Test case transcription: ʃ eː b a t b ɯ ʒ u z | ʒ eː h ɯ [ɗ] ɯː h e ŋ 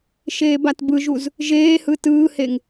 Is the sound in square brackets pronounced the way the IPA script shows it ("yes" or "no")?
no